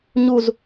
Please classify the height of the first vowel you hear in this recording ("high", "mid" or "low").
high